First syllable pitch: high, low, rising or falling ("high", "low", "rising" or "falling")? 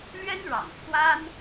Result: high